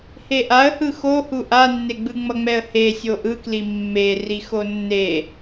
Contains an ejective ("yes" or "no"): no